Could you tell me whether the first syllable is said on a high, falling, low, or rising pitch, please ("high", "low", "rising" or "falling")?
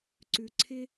low